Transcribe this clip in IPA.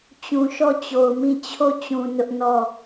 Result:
t͡ɕ ũ˨ ʃ ɔ˦˨ t͡ɕ o˨ ʊ̯ m ĩ˦˨ t͡ɕʰ o˦˨ t͡ɕ ũ˨ n ʊ˦ ʔ n ɔ˦˨

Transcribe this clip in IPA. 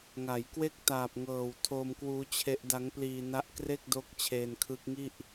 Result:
ŋ a˩˦ j k w e˥˩ k̚ t aː˨˩ p̚ ŋ ɤː˨˩ w tʰ o˧ m k w uː˦˥ t͡ɕʰ e˦˥ ʔ d a˦˥ ŋ p l iː˧ n a˦˥ ʔ k r e˥˩ k̚ d o˦˥ k̚ t͡ɕʰ eː˧ n kʰ ɯ˦˥ k̚ ŋ i˥˩ ʔ

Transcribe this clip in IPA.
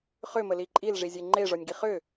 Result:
χ ʏ m ə l i ǃʼ i l ʐ i zʲ e ŋ͡ǃ e ʐ ɔ nʲ ɡ i χ ʏ

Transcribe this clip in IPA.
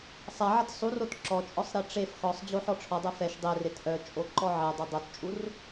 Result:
sˤ a ʕ ɐ t sˤ u r o t ǁ ɔ t͡ʃʼ ɔ sˤ ɾ e ʈ͡ʂ e f x ɔ sˤ d͡ʑ o ħ ɔ ʈ͡ʂʰ ɔ dˤ ɛ f ɛ ʃ dˤ e r e t ʔ œ t͡ʃʼ o ǃ ɔ ʕ e dˤ ɐ dˤ o t t͡ʃʼ u r

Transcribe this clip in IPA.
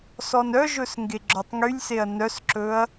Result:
s ɔ n œ ʒ ɵ s ŋ ɡ e ɡ͡ǁ ɔ tˤ ŋ y lʲ s e ɐ̯ n œ s ǁ ɵ ɐ̯

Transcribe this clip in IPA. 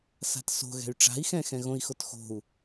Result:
s a̤ t s o̤ ɣ ɛ̤ y̯ ʈ͡ʂ a̤ i̯ x ɛ̃ x ɛ̃ ɣ õ i̯ x o t x o̤ u̯

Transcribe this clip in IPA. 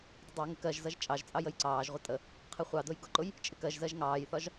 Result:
d ɪ dˤ ɑ ŋ ɪ k ɜ ʒ z ʌ ʒ t͡ʃʼ ɑ ʒ t͡sʼ ɑ j ə j ǀ ɑː ʒ ʁʷ ɪ tʼ ə | qʰ ɪ χʷ ɑ d ʊ j ɡ ʊ ǃ ʊ j | t͡ʃʼ ɪ k ɜ ʒ z ɜ ʒ ŋ ɑː j θ ɒ ʒ

